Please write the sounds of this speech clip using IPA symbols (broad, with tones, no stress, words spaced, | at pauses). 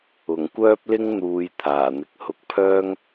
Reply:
ʊ˨˩ŋkʷœː˥p̚lɪ˥ŋ n̪uː˨˧j t̪ʰaː˨˩n̪ɪ˨k̚hʊ˧k̚ pʰœː˥ŋ